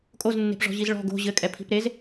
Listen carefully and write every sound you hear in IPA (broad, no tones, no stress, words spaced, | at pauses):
kʼoznːe̤pʐɔ̤ʑiz ɭɔ̤ ɡo̤ ʑɘkʼɛpʰi̤p ɾez